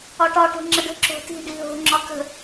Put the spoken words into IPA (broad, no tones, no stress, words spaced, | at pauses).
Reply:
ɒʈɒ ʈo̤ŋ͡ǁəɖə̤ ǁo̤ti̤ ɖiɦo̤ ŋ͡ǁɒkə̤